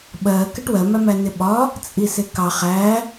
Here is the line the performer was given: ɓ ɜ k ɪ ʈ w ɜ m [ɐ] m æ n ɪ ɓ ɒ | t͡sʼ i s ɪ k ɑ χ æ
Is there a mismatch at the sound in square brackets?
yes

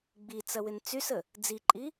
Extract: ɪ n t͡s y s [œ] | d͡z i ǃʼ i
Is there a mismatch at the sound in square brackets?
yes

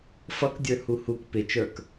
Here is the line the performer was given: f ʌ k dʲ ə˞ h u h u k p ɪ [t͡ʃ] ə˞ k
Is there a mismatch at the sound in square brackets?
no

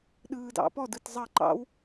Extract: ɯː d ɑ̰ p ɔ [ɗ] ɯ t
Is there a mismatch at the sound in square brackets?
yes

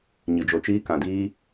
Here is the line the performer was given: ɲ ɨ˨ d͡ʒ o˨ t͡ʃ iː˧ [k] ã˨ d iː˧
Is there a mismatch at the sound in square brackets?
no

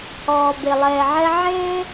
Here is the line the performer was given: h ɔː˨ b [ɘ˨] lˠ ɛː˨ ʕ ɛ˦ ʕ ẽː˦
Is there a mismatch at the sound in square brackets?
yes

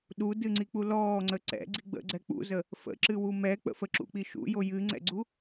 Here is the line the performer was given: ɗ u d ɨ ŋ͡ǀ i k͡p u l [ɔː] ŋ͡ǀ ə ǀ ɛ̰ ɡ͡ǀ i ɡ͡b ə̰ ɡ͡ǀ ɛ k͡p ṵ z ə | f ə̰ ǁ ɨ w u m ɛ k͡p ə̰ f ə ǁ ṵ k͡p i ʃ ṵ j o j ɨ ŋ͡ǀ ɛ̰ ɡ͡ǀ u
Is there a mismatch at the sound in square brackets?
no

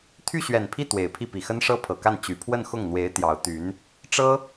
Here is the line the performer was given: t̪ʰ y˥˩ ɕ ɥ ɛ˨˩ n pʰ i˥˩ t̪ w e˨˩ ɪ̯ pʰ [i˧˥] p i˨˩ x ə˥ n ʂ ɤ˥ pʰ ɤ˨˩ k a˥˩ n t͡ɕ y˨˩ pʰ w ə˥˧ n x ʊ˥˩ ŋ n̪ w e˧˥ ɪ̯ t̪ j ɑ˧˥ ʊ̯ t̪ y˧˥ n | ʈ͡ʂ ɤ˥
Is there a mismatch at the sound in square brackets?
yes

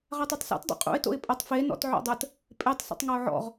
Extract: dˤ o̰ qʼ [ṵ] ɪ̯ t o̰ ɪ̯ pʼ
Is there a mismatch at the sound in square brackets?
no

